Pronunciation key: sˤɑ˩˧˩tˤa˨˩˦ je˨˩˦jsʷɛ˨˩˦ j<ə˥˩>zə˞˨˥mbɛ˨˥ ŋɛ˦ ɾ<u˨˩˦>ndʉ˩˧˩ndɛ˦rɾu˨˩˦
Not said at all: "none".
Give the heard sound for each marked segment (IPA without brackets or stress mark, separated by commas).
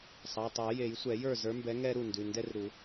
ə˞˥˩, u˥˩